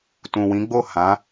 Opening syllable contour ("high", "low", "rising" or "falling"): low